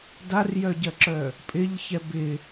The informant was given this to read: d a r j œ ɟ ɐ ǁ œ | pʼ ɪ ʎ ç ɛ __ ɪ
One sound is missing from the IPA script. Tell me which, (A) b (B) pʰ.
A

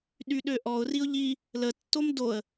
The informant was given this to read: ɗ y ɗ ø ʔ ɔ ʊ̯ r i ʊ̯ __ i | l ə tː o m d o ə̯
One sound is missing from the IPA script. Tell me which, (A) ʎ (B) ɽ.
A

